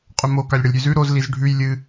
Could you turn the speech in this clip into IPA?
qʼɵmo kalʲɽɐlʲɾʲʉzʉ ɾoz lizɖʱʉj lʲɨ

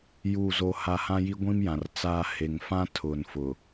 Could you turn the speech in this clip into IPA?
ju˦˨zo˦ha˦ hã˦ji˦ɡʷĩ˦mjã˨r t͡saː˦ he˨ŋfã˦ tʰʊ˨nfʊ˨

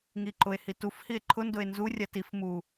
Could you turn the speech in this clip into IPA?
ŋiǃʊe̯hi tuf hie̯ǃʰʊndʊe̯ nzurʲa tif mu

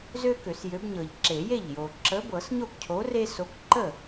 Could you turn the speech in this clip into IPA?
zø˦ kø˨˩˦sjø˨˥bɲɤ˨ʎ ǁe˨˩˦je˥˩ʎjo˨ ǁə˨˥bɤ˨˩˦s ɲo˥˩kcʰo˨˥re˦so˨˥k ǃə˥˩

